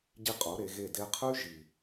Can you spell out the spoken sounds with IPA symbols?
ɟ i˦ qʼ o˨˦ ɾ e˧ ɣ e˦˨ d e˧ qʰ ʉ˦ ʒ i˨

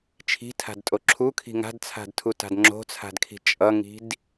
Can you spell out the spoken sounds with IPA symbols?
t͡ʃʰ i̤ tʰ a̤ d tʼ o ǁʰ u kʰ i̤ ŋ a̤ d t͡sʰ a̤ d tʰ u t a̤ d ŋ͡ǁ o̤ t͡sʰ a̤ d kʰ i̤ t͡ʃʼ ʌ ŋ i̤ d

